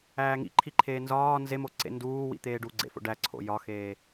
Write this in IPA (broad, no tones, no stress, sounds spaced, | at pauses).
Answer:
æː ŋ ḭ ǃʰ i ǃʰ eː n z ɒː n z e m o ǀ ḛ n d uː w ḭ t̪ eː ɖ u ɡ͡ǀ ḛ f o̰ ɖ æ ǀʰ o̰ j ɒ x eː